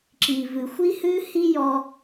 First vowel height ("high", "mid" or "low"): high